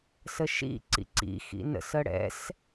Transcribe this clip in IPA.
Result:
s ə ʃ ḭ ǀ ḭ ǀ ḭ x ḭ n ə̰ s ə ɽ ɛ̰ s

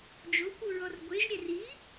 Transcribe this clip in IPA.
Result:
d͡ʒ o kʷ u ɹ ɔ r ɡʷ e ʒ ɾʲ ɛ r i

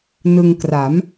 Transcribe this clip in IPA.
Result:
n ɯ˧ ŋ k r a˩˦ m

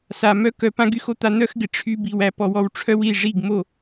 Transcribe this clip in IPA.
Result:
s a˨ m œ˦ k œ˨ p ã˦ ɡ y˧ x o˨ t̪ a˧ n̪ œ˦ x ɡ ɪ˨ ʈ͡ʂʰ y˧ b i˨ w æ˧ p ɔ˨ w ɔ˧ w ʈ͡ʂʰ œ˦ w i˦˨ ʐ i˦˨ ɡ m o˦˨

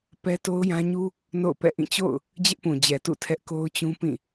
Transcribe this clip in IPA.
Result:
p ɛ˦ t o˦ ʊ̯ j ã˦ ɲ u˦ | n o̰˦˨ ʊ̯ p ɛ̰˦˨ ʔ ĩ˦˨ t͡ɕ o̰˦˨ ʊ̯ | d͡ʑ ɪ˦ ʔ p ũ˨ d͡ʑ ɛ˨ t ṵ˦˨ tʰ ɛ˦ ʔ k o˦ ʊ̯ t͡ɕ ũ˦ p ĩ˦˨

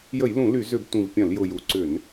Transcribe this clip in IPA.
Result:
j ə˧˩˧ j l ũ˧˩˧ l y˧˩˧ z ʏ˧˩˧ b tʷ ĩ˨˩ v pʲ ɐ̃˧˩˧ l j ʊ˨˩ j u˨˩ ǀ ʏ˧˩˧ n

